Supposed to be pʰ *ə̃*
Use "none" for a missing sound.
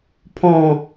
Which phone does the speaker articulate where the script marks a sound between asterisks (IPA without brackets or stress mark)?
ɔ̃